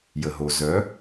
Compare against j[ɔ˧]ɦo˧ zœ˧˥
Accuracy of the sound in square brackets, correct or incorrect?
incorrect